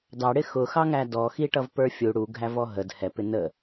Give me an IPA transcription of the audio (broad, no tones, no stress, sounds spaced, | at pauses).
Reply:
d ɑ ɽ ɪ x ʊ x ɑ ŋ æ d ɔ x i ʈ ʌ v p ə˞ fʲ u ɽ u ɡʱ æ v ɔ ɦ ə d h ɛ p ɪ n ə